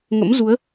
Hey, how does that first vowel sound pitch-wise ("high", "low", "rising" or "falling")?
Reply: rising